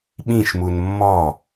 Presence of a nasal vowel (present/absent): present